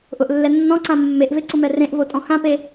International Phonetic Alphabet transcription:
ʔʊʔlːɛ nːɔ̃ǀã mːeʔveǀʊmɛ rẽʔvotʼɔ̃ xãpe

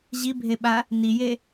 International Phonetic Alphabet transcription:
ʑibʱeɓa | nije

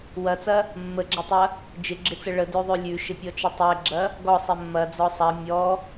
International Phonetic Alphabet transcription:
wɐt͡sɐ | mːəɡ͡ǁɐtˤɐ | d͡ʒɪɡ͡ǁɪt͡sə ɭədøðˤø lʲʉʃɪpʲɔt͡ʃə tˤɛɡ͡ǁɐ | ɡɔsˤɛ mːɐd͡zɔ sˤɐ mʲɔ

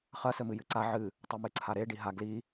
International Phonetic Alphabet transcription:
χɐ sɘmɨjɨǀa ʕɨ | tˤɐmɨǀʰaɾe ɖiɦa ɡli

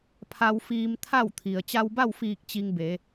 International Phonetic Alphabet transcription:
pʰa˧wfiː˧mt̪ʰa˥˨w t̪ʰi˩ə̯ t͡ɕa˧wba˥˨wfiː˧˩k̚ t͡ɕi˧ŋbe˩˧

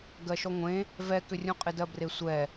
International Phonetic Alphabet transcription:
ɡɜʃɔŋʷẽ | vɛkʏrʲũqʼɪ dɜbresʷɛ

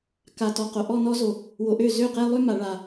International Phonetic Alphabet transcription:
ka˨tɔ˨qo˨ ʔɔ˦˨nɔ˦zo˨ | wo˨ʔø˦˨ zø˦˨qe˦ lˠø˦ma˨ ɭa˨

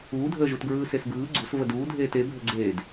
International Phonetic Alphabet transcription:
uːdʱəːʒutɡɹɯː sesɡɯː ɡ͡ǀus vəduːdʱeːt ebʱəɡ͡ǀeːd

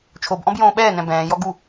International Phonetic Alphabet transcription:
t͡ʃʰobʔɔ̃b jõːɓɛːnɛ̃ bɛ̃ːjɔ ɡu

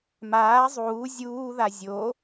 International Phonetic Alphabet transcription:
maː zˤuː zʲuːða zʲo

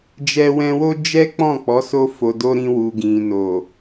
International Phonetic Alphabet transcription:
d͡ʒɛ˧wɛ̃˧wo˦ d͡ʒɛ˦ k͡pɔ̃˦˨k͡pɔ˨˦ so˧fo˨do˧ ɾĩ˧ wu˨ɡĩ˨no˨

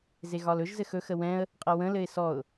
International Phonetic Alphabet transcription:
zeɣɒlɵʒ zɘxɵ xəwɛ̃ə̯ | qʼəwə̃ lɘɪ̯sɔʊ̯

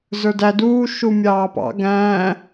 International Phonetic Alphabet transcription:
zə˞dæ duː ʃumʲɑːpɑ̰ ɡæ̃ː

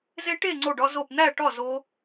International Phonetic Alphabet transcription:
ze˦˥ʈe˥˧ ŋ͡ǀo˥˧ɖɒ˦˥zo˥˧p n̪æ˥˧ʈɒ˥˧ zo˦˥

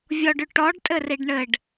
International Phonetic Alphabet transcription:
vʲɔɖʉ ʈɔɖtʼɘriɖ ɳɘɖ

